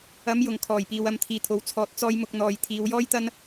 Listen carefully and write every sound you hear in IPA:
ɐ˨˥ m j ʊ˨˩ ŋ kʰ ɔː˨˩ j p iː˨ w ɐ˧ m t̪ʰ iː˨ t̪ʰ o˨˥ w t͡sʰ ɔː˧ t̚ t͡s ɔː˥ j m ʊ˥ k̚ n̪ ɔː˧ j t̪ʰ iː˨˧ w j ɔː˥ j t̪ ɐ˥ n

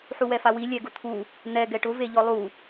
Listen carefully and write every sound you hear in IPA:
ħ u w ɛ f a w i lʲ ɛ ɡ ʊ t̪ʰ u | n̪ ɛ ɡ ɛ ʈ ʊ v e ʎ ɔ lˠ u

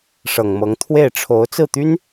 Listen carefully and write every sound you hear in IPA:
ʂ ɤ˨˩ ŋ m ɤ˧˥ ŋ t̪ʰ w e˥˩ ɪ̯ ʈ͡ʂʰ o˧˥ ʊ̯ t͡s ɹ̩˥˩ t̪ y˥ n

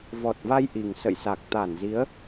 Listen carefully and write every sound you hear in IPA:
v ɔ˨˩ t̚ v a˧ j ʔ i˨˩ ŋ s ə̰˧˨ j s a˨˩ k̚ t̪ a˧˩ n z i˨˦ ə̯

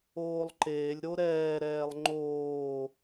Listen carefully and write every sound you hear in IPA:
oː lˠ ǃ eː lʲ ɾ o ɾ ɛː ɾ ɛː lˠ ŋ͡ǃ oː

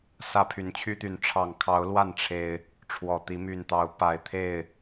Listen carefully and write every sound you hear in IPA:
s ä˦ pʰ y˨˦ n t͡ɕʰ y˦ t̪ y˨˦ n ʈ͡ʂʰ ɑ˨˩ ŋ kʰ ɑ˨˦ ʊ̯ l w a˥˨ n ʈ͡ʂʰ e˨˩ ɪ̯ | ʈ͡ʂʰ w ɔ˨˩ t̪ i˨˦ m y˨˩ n t̪ ɑ˨˦ ʊ̯ p a˨˩ ɪ̯ t̪ʰ e˥˨ ɪ̯

